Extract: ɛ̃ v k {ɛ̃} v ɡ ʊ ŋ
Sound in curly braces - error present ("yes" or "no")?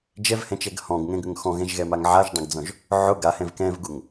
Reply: no